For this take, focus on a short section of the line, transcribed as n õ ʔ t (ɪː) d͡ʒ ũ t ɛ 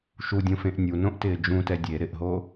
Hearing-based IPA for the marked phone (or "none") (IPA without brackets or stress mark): ɪː